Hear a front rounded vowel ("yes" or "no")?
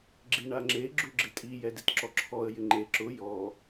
no